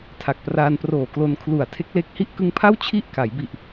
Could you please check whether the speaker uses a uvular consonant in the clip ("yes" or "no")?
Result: no